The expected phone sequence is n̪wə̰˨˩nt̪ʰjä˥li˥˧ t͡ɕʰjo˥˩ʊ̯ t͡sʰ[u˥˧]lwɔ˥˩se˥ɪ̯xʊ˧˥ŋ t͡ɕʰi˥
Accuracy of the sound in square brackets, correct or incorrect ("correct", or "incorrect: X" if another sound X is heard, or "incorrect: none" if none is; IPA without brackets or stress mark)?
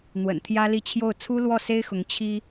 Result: incorrect: u˥